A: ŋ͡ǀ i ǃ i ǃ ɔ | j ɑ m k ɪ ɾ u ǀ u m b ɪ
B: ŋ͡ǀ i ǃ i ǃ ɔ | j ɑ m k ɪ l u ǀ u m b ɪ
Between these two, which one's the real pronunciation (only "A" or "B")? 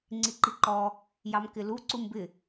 B